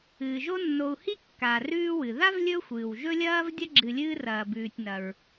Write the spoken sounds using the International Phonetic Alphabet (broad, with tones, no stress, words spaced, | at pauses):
ɨː˩ʒo˦nːo˨u̯hi˥ kːa˩ rʉː˦wɨ˩ ða˥vlʲɵ˦ xʷɨː˩wʒɵ˥lʲɐː˥v dʲɐ˥ɡ͡ǁɨ˨lʲɨː˦ rɐː˨bʉː˨tʲ nɐ˨ɹ